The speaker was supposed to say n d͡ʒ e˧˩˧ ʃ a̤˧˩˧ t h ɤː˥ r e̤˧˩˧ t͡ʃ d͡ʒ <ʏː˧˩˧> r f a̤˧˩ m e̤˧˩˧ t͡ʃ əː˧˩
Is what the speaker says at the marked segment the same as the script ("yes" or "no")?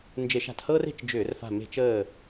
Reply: yes